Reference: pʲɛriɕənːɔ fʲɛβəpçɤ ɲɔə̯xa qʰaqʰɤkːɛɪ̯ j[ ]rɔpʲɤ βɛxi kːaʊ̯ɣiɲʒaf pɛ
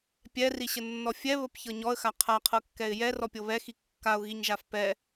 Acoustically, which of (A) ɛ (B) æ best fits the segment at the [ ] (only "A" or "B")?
A